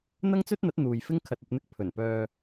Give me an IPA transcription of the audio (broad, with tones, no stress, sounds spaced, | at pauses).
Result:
n̪ ɐ˥ ŋ t͡s ɵ˥ t̚ n̪ ɐ˨˥ t̚ n̪ uː˨ j f ɪ˥ ŋ kʰ ɐ˨ t̚ ɐ˨ p̚ n̪ ɪ˧ k̚ pʰ ɵ˨˩ n p œː˧